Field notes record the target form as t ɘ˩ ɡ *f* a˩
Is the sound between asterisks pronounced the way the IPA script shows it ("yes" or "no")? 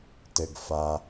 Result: yes